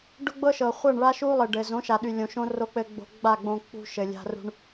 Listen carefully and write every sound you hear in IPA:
ɖ ʊ˦ ɡ͡b ɤ˦ ʃ ɤ˨ χʷ ɤ˦˨ ɳ ɭ a˦ ʃ u˦ lˠ ɘ˨ ɖ ɘ˨ z õ˨˦ ʃ a˨ ɗ y˨ lʲ õ˨ ʃ õ˦ r o˧ k͡p ɘ˧ ɡ͡b o̤˧ ɡ͡b a˦˨ ɡ͡b õ˧ k͡p ṳ˧ ʃ ɘ˨ lʲ a̤˧ r ṳ˧ ɳ

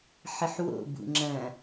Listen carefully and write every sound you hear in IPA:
ħ ɨ ħ w o̰ b ṵ ŋ͡ǁ ɐ̃

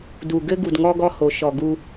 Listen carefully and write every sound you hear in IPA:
d u˨ ɡ ɘ˦ ɡ u˨ d ŋ ɔ˦ ɡ ɔ˦ h o˨˦ ʃ ɔ˨ ɡ u˦

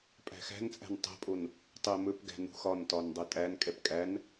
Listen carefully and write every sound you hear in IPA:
pʼ æ̤ x æ̤ n t͡sʼ æ̤ n tˤ ɛ̤ pʼ o n | tˤ e m ɵ p ɡ æ̤ n ṳ x ɒ n t ɒ n dˤ ɛ tʼ æ n kʼ ɛ p kʼ æ n

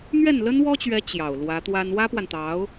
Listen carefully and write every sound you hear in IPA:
n̪ ɥ ɛ˥˩ n l ə˥ n w ɔ˥ t͡ɕ ɥ ɛ˧˥ t͡ɕ j ɑ˨˩ ʊ̯ l w ä˧˥ t̪ w a˥ n w ä˥ p w a˨ n t̪ ɑ˧˥ ʊ̯

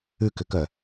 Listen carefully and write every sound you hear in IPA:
ʉ k ʏ k œ

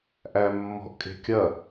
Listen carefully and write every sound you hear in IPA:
ʔ æ mː ɔ̤ ʔ kʼ e̤ kʲ ɐ

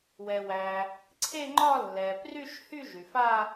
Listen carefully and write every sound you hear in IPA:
w ɛ˩ w æ˩ | ǀʰ e˥˧ ŋ͡ǃ ɒ˥˧ lː ɛ˩ p r y˥˧ ʃ h y˥˧ ʒ y˩ f a˥˧

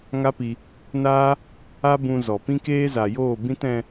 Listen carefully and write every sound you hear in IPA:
ŋ a˦ p i˧ | n aː˦ | a˦ b ũ˧ z ɔ˨ p ĩ˦ k eː˦ z a˨ j oː˦˨ b ĩ˦ t ɛ̃˧

